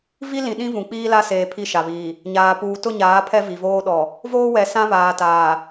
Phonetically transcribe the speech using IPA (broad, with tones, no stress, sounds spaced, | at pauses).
v i˦ l ĩ˨ ɗ ĩ˦ v ũ˨ k͡p iː˦ l a˦ s eː˨ pʰ i˦˨ ʃ a˨ β iː˨ | ɲ aː˨ p uː˨ t ʊ˦˨ ɲ aː˨˦ pʰ ɛ˦ v i˨ v oː˦ ɗ ɔ˨ | v oː˦ w ɛ˨ s ã˦ β aː˨ t aː˨